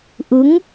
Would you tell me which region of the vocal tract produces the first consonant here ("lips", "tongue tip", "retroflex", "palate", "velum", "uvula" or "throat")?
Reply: throat